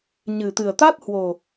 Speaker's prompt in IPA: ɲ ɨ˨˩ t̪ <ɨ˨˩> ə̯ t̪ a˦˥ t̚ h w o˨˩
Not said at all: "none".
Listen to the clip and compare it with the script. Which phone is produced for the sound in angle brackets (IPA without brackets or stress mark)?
ɨ˨˩